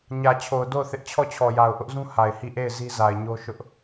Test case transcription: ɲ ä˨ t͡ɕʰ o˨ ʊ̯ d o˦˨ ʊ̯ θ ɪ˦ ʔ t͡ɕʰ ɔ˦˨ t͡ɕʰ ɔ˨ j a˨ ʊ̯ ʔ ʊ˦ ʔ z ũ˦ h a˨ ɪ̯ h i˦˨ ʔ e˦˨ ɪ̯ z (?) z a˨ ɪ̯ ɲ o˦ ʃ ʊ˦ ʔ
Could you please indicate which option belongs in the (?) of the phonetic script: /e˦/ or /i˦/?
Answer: i˦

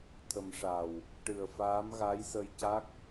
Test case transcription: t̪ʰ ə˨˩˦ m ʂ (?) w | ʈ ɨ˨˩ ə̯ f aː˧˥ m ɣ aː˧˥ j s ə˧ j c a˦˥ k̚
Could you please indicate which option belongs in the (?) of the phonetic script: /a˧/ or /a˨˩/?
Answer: a˨˩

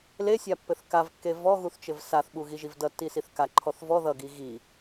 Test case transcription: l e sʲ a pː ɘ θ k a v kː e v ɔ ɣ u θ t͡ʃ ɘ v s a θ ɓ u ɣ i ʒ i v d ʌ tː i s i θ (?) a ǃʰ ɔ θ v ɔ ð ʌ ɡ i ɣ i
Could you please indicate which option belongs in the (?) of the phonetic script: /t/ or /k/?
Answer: k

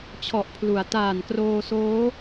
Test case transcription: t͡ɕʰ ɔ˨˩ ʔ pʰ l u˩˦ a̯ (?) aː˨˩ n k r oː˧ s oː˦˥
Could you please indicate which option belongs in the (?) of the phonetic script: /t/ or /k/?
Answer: t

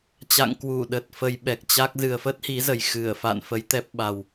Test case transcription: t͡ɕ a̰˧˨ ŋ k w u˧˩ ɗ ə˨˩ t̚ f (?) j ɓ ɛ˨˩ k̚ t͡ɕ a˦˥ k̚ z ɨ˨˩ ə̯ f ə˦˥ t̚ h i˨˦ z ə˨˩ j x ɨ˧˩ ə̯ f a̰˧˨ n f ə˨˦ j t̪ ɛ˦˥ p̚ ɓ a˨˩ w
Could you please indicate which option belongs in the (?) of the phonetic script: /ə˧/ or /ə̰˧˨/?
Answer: ə˧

